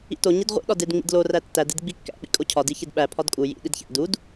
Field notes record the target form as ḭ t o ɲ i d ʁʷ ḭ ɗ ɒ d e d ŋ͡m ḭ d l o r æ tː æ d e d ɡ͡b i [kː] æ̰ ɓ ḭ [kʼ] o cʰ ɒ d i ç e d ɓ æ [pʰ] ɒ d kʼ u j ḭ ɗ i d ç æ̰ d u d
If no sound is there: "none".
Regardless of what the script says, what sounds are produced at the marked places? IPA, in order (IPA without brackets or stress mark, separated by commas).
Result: kː, kʼ, pʰ